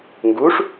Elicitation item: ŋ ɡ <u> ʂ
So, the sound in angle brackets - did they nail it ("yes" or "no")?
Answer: yes